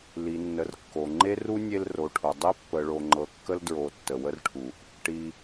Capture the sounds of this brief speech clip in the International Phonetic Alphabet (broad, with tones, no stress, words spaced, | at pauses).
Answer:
li˩nːə˩r kːo˩ ŋ͡ǃe˥ru˥nʲe˦l ro˩ʈʰo˩dˤi˦ pːə˨ɭo˨ ŋ͡ǃɤ˨kːə˦ldɹo˨ tːə˩wə˦rʈʰu˩ʔ | ʈi˨